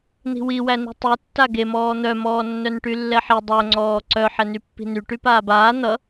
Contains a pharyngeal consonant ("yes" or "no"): yes